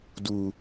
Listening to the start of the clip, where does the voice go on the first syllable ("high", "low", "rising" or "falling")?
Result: low